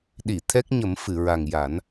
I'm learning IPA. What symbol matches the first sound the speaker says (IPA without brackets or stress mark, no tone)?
ɗ